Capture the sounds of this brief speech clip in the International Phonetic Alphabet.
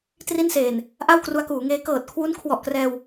t r i˥˩ n s eː˨˩ n | ʔ a˥˩ w k r u˧ a̯ k uː˩˦ ŋ eː˦˥ k ɤː˨˩ t̚ kʰ w u˦˥ n kʰ w ɔ˨˩ ʔ k r ɛː˧ w

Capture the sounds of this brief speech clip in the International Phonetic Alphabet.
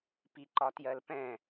p i ǃ ɒ t j ɜ l p ɛ̃

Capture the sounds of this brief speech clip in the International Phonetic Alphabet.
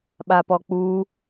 ɓ a p ɔ k͡p u

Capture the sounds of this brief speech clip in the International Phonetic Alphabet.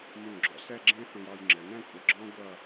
m ũ˧˩ ɡ͡ǁ ɔ̰˧ s ɛ˥˧ ɡ͡ǁ ẽ˥ θ õ˧ j ɑ˧ j ŋ͡ǁ ɘ˩˧ n ɛ̃˥˧ kʷʼ ɘ˧ ɡ͡ǁ ɔ̃˥ ɡʷ ʌ˥˧

